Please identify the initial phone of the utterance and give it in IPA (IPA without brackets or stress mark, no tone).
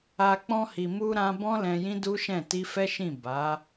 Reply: a